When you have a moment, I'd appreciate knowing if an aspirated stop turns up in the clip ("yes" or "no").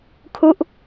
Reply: yes